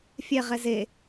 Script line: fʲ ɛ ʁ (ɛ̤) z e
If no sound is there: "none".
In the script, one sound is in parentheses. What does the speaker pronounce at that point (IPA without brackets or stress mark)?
ɛ